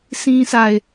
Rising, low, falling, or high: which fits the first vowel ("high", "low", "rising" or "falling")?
high